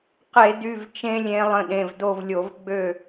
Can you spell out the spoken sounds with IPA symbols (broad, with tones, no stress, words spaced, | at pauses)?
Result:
qe˧˩˧dy˩˧˩v t͡ʃẽ˦˥lʲẽ˨˦ lˠə̃˩˧˩ɗẽ˩˧˩v do˦˨vlʲo˧˩˧vɡ͡bø˦˨